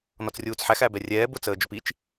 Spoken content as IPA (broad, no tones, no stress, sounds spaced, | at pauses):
n ɔ t͡s rʲ uː t͡s ħ æ x æ b ɛ rʲ ɛː b ʊ t͡s əː d͡ʒ ʊ p i t͡ʃ